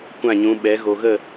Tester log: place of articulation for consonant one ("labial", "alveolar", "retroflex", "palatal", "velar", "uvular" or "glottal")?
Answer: velar